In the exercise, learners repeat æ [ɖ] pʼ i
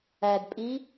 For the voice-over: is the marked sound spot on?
no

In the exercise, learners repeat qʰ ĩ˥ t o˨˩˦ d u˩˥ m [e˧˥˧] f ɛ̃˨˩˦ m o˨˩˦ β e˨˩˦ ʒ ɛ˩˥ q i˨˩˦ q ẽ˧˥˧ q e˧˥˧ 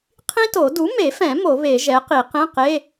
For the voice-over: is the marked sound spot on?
no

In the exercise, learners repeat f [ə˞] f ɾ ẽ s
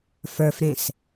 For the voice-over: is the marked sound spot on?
yes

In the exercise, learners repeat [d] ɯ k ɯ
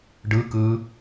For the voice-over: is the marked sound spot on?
no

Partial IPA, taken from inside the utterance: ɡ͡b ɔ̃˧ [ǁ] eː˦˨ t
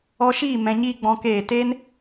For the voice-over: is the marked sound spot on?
no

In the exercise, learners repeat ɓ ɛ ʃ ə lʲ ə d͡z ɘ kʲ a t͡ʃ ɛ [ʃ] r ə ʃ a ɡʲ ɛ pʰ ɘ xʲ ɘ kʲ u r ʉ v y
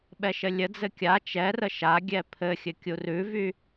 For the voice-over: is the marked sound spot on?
no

